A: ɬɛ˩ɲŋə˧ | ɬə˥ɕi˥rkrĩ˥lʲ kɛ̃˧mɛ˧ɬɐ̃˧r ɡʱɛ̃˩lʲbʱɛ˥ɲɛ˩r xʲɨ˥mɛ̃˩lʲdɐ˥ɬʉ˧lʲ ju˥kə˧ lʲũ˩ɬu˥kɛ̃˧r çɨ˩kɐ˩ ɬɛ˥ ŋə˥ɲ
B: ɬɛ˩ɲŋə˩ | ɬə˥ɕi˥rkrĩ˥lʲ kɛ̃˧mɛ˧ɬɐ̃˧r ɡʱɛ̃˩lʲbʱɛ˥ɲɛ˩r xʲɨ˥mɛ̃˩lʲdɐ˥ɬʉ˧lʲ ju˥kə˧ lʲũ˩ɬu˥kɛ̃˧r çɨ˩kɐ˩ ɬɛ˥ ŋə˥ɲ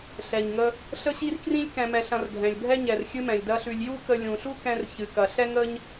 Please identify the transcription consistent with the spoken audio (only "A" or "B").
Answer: A